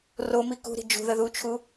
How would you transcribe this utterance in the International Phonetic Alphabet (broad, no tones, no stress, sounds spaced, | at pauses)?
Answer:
r o m i k ṳ ɾ i̤ d͡ʒ ṳ ð ə ð u t͡ʃʰ u